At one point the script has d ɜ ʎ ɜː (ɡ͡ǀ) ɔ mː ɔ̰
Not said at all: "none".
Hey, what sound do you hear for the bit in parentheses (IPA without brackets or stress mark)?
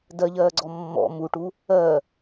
ɡ͡ǀ